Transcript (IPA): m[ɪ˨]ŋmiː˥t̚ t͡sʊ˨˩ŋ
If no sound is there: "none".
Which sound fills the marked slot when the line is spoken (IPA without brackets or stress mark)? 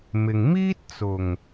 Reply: ɪ˨